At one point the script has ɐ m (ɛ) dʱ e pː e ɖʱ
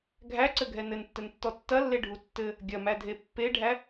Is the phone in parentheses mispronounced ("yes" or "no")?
yes